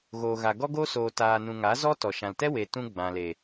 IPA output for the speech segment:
ɣoː˨ ɣa˨ɡɔ˦ɡo˦ soː˨taː˨nũ˨ ŋa˨˦zɔ˦tɔ˨ ʃã˨ltɛ˦ we˨tũ˧ ɡ͡bã˨le˨

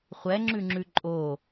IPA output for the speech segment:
χʷɛŋ͡ǁʉŋ͡ǁʉ ǃʼo

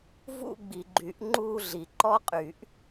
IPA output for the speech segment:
vṵ˥˧ɡ͡bi˨ɡ͡ǃy˨˩˦ʔ ŋ͡ǃuː˥˧ɮi˨ ǃɔ˦˥qʼyː˨˩˦ʔ

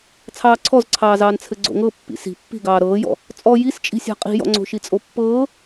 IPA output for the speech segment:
t͡sʰɑːǀʰɔzǀʰɑːzɑːn t͡sʰɘɡ͡ǀo̰ŋɤ pːḭsi̤ pːi̤ɡɑː ɾɤːjɔ̰ | t͡sʼɔ jist͡ʃʼi̤sʲa̤ qʼi̤jɔ̰ŋ͡ǀo̤ ʃit͡sʼopːɤː

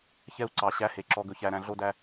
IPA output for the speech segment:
çɛ˦u̯ǀɑ˨ɕæ˦he˨ ǁɔ˨ɡɵ˨çæ˨ɾæ̃˨ ɮo˦dæ˦

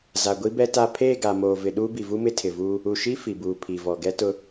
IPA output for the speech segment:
za˨ɡʷi˦bɛ˦ ta˦˨ pʰeː˦˨ɡa˨ moː˨vɪ˨ ɗuː˦bi˨vu˦ mɪ˦tʰɪ˨ vuː˦ | u˨ʃi˦ fi˨buː˨ pʰi˨vɔ˨ ɡɛ˦tʊ˦

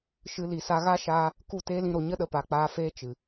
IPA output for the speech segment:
ʃɨ˧ li˨sa˧ɣa˦ ʃaː˦ | ku˦˨teː˦lĩ˧ɾo˨ ɲə˦ɗə˨ pa˨k͡paː˧feː˦ t͡ʃɨ˨

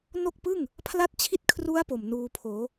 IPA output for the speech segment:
no˥˩k̚pɯː˥˩ŋ | pʰla˥˩t̚t͡ɕʰi˥˩t̚kʰru˦˥a̯ po˨˩mnuː˧pʰoː˩˦

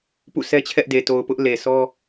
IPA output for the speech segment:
pṵ˦˨sʰɛ˦t͡ɕʰɛ˦ʔde˨ to˨ʊ̯pʊ˦ʔ le˨sʰɔ˦

